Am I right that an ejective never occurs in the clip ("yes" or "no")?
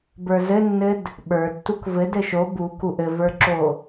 yes